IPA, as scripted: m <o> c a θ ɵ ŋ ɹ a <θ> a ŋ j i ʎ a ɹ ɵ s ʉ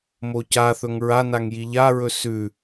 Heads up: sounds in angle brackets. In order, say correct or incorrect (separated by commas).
correct, incorrect